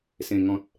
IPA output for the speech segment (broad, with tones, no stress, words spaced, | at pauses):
sẽ˨˩ŋɔ̃˨t̚